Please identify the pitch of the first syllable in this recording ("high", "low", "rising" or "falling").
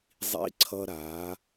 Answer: high